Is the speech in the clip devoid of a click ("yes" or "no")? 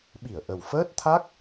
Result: yes